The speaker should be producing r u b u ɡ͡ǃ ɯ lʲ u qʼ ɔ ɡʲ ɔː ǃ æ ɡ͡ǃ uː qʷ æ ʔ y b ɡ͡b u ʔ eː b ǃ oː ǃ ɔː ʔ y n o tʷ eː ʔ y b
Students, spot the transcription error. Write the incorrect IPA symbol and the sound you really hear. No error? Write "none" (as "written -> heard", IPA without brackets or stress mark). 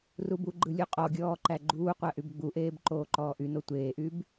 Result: none